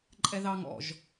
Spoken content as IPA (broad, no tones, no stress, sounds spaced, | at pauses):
ǃʼ ɛ ð ɑ ŋ ɔ̰ ʒ